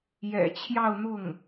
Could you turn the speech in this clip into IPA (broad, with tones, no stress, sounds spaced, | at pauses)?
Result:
j ɛ̰˨˩ t͡ɕʰ j ɑ˥˧ ʊ̯ n̪ ʊ˥˩ ŋ